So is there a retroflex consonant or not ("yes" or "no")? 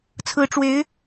yes